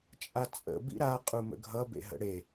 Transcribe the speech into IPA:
t͡ʃʼat͡sʼə̰ bḭɾa qʼumə̰ɡʱʌ bḛɦə̰ɽe

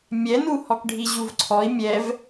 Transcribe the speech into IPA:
mʲɛnu hɔkɖʱiʑuvǀʰɔi̯ mʲɛv

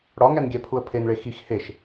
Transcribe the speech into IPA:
ɽɒŋænɡʲæ pʰuə̯pʰenɭe xix heʃ

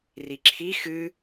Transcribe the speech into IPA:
riǁʰi xɨ

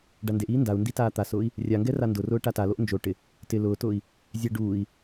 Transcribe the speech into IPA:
ɖandeʔiː ndau̯ndi taːt̪asʊːi̯ | rʲaŋɡɛ randʊrʊː ʈataloʔ nd͡ʒo ʈɪ | tɪ lʊːtʊːi̯ | zʲɛ ɖuːi̯

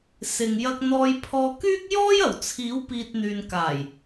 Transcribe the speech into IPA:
sɪ˨ŋ jɐ˧k̚n̪ɔː˧jpʰɔː˧ kyː˥k̚ jɔː˥jɐ˨˩wt͡sʰiː˨˥wpiː˨t̚ n̪yː˨nkaː˨˩j

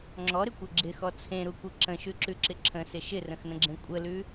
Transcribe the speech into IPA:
ŋ͡ǁɔɾɪkʷɛ ɡ͡ǁɪxɔ t͡sʰẽɾukʷɯ ǁə̃ʃʉǁʉǁɪ ǁʰə̃sɪ ʃɪrə̃xnə̃ɡ͡ǁẽ kʷʼəlʉ

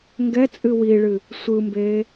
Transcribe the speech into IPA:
ŋɡɛt͡sʼɨ wiɭɨ | sʷɯmbeː

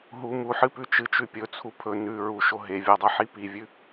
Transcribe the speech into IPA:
ɦu muħɨpʉ t͡ʃɨt͡ʃʉ pʲɵt͡sʰu pʰɵ nʉ ɹuʃo ɦevʲadˤaħi pivʲʉ

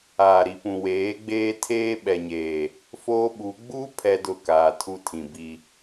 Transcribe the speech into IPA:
aː˨ɾi˨pũ˨ weː˨˦ɡ͡beː˦ tʰeː˦ɓɛ˨ɲeː˨ | foː˦ɓu˨˦ ɡ͡bu˦ pʰɛ˦dʊ˦˨kaː˨tʰu˦ tʰĩ˨ bi˦

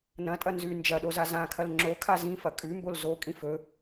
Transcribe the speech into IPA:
nɐ̃tʼɐ nzʉ nd͡ʒɐɗoza zãkʰɐl ŋ͡ǁokʰa zĩfɐ kʼʉmbol zokʼĩf ɵ

